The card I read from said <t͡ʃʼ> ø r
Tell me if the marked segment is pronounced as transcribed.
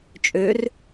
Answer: yes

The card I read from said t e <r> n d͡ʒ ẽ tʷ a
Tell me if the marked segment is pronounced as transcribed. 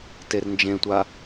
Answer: yes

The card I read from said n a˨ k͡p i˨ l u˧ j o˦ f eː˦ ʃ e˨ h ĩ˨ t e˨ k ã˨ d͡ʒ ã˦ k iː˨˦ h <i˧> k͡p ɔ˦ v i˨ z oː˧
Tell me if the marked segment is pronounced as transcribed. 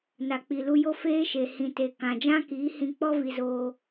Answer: no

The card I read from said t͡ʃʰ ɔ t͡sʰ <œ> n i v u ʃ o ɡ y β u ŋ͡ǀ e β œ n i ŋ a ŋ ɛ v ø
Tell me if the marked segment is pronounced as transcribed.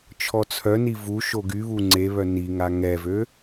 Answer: yes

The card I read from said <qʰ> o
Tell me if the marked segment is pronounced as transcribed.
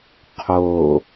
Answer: yes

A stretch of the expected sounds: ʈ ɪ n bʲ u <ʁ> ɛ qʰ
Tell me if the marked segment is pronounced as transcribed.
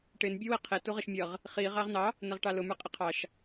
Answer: no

